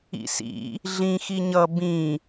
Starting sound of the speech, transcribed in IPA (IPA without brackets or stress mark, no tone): ḭ